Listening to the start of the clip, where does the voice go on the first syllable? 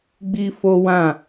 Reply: high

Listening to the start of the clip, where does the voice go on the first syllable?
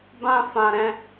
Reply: high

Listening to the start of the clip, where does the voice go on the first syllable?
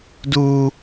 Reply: high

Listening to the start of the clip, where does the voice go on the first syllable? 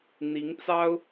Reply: rising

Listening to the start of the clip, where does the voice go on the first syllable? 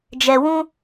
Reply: low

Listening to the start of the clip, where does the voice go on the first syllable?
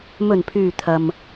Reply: low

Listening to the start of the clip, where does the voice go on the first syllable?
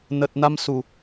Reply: low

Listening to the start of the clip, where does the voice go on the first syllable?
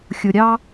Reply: low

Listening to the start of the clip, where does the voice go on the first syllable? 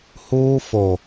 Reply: high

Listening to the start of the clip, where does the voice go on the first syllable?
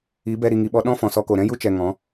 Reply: rising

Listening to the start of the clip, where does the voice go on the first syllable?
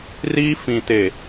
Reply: high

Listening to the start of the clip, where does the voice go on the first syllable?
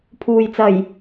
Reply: low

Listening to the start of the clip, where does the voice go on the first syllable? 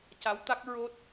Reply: rising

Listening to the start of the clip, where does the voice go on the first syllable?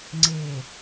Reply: low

